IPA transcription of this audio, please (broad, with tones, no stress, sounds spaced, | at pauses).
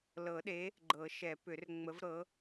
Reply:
l ɤ˨˩˦ ɗ e˨˥ | ɡ͡ǃ ɤ˨˩˦ ʃ ɛ˨˩˦ p ʏ˨˩˦ r ŋ͡m ə˨˥ v ɾ ɤ˨˥